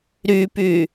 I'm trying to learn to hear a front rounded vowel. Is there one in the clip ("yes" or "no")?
yes